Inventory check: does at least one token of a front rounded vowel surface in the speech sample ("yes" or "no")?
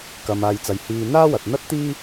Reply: no